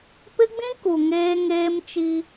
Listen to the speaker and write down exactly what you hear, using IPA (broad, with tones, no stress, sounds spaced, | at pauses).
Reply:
p ɪ˦ ɡ͡b ĩ˦ k u˨ ŋ eː˦ ŋ eː˦ m t͡ʃ i˦